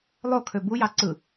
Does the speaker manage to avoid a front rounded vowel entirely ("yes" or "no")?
no